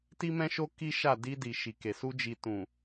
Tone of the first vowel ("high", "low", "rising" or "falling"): high